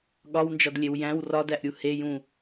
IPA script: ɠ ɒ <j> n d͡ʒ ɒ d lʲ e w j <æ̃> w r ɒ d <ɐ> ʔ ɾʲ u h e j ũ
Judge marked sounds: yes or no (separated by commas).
no, yes, no